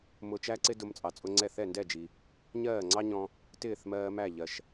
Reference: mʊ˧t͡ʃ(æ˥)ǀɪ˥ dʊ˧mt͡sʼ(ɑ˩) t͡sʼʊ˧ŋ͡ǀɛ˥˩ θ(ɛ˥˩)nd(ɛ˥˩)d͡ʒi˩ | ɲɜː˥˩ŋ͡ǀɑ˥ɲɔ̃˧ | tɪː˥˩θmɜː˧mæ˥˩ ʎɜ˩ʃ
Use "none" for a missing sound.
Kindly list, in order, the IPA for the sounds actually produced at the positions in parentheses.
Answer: æ˥, ɑ˩, ɛ˥˩, ɛ˥˩

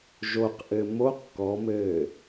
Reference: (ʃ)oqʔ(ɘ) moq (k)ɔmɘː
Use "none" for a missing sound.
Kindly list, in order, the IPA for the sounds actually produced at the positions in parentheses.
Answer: ʒ, ɘ, k

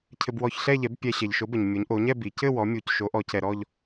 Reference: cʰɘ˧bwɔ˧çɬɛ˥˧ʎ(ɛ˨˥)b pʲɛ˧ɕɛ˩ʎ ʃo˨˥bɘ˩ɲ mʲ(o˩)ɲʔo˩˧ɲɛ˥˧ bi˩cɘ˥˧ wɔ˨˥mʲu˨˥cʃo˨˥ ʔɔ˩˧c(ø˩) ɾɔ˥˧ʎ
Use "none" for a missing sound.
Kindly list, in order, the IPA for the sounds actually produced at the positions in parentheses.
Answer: ɛ˨˥, o˩˧, ɛ˩

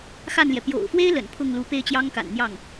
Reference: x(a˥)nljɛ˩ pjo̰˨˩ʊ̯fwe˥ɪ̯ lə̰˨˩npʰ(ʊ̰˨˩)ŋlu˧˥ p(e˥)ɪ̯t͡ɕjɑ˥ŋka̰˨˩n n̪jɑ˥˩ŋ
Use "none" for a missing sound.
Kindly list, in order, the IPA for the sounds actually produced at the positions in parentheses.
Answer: a˥˩, ʊ˥˩, e˥

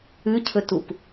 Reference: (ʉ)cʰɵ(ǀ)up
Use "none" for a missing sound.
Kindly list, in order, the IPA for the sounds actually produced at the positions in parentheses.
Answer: ʉ, t

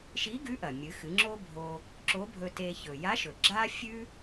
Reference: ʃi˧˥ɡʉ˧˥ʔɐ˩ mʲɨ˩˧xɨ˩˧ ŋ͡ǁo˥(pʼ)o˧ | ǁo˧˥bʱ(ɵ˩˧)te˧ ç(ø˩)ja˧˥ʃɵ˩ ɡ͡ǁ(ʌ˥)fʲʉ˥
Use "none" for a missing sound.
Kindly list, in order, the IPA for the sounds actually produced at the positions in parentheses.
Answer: bʱ, ɵ˧, ɵ˩, a˥

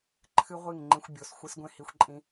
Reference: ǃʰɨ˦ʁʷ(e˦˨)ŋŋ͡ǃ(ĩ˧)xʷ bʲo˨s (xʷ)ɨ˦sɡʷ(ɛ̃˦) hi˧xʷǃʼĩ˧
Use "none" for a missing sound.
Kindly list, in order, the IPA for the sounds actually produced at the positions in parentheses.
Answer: i˦˨, ĩ˧, xʷ, ẽ˦

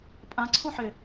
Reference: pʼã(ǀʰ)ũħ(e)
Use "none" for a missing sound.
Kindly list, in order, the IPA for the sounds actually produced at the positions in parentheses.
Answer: ǀʰ, e

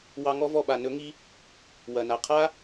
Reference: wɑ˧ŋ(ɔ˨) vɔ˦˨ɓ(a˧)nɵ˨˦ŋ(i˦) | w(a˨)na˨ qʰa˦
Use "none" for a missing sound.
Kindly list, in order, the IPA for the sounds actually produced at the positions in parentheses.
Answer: ɔ˦, a˨, i˦, ɐ˨

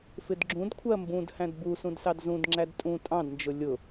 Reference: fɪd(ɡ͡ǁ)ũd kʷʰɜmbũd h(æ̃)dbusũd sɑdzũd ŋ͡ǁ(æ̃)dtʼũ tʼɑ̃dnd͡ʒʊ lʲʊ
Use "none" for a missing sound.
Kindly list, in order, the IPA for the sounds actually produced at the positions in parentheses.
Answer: ɡ͡ǁ, æ̃, æ

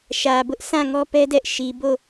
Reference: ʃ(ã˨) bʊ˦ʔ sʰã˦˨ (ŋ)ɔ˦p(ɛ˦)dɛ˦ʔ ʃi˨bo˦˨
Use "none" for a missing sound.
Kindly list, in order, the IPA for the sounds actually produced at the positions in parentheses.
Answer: ä˨, ŋ, ɛ˦

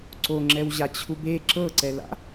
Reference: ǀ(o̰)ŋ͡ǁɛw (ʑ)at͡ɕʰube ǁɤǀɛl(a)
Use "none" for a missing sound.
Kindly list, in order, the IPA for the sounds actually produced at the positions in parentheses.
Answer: o, ʑ, a̰

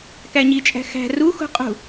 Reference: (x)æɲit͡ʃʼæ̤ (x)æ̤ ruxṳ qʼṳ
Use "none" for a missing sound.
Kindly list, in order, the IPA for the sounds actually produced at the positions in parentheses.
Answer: k, x

